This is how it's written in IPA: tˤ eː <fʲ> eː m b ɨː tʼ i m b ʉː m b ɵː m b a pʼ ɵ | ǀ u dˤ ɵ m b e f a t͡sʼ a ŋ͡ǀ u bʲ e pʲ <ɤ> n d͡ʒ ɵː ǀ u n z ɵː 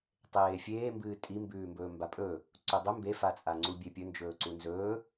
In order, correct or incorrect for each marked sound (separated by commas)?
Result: correct, incorrect